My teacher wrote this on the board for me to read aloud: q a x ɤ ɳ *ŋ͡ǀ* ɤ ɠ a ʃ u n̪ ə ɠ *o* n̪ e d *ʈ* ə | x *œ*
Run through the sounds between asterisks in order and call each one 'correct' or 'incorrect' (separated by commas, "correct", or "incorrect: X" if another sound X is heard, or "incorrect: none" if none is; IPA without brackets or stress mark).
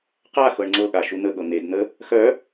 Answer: correct, incorrect: ɤ, incorrect: n̪, correct